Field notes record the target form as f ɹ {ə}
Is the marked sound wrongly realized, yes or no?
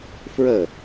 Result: no